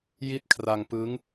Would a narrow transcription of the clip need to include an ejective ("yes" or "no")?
no